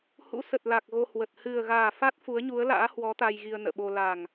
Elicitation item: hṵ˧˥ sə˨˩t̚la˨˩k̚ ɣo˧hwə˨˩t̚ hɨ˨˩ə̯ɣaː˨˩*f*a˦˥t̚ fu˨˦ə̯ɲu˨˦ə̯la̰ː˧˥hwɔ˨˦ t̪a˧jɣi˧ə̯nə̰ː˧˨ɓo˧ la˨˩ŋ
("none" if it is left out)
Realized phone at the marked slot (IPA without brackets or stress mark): f